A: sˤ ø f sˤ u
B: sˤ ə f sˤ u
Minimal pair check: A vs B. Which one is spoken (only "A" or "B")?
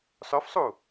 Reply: A